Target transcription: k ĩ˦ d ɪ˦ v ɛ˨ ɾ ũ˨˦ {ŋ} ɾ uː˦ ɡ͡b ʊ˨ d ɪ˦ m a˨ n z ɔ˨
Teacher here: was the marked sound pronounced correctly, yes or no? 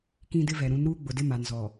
no